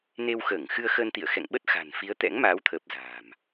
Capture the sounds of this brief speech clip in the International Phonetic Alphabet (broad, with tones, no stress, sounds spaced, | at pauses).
n e˧ w x əː˧˩ ŋ x ɨ˧ ə̯ x əː˧ n t̪ ḭ˧˨ ə̯ x ɛ̰˧˨ ŋ ɓ ə˦˥ t̚ x a̤˨˩ n f i˨˦ ə̯ t̪ ɛ̰˧˥ ŋ m aː˨˦ w t̪ʰ əː˨˩ p̚ z a̤ː˨˩ m